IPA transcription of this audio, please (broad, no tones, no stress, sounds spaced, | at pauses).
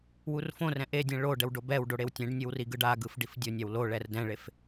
w u r f õ r ɛ̃ ʔ e dʲ ɛ̃ ɭ o ɖ ɛ w ɖ o b ɛ w ɖ o ɽ e w tʲ ẽ ɖ nʲ ɯ w r i ɡ ɯ ɖ a ɡ ɯ f ɖ i f dʲ o nʲ a w l o ɭ ɛ r d ɛ̃ ɭ e f